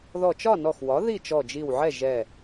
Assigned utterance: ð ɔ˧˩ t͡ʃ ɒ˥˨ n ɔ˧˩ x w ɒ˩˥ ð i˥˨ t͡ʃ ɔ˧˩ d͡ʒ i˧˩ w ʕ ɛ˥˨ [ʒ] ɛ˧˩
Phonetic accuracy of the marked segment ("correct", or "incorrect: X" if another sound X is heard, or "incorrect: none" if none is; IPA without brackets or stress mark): correct